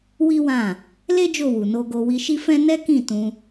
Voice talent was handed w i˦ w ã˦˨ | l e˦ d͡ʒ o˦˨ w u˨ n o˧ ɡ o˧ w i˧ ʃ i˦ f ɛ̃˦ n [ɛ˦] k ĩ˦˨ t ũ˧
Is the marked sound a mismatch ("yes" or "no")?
no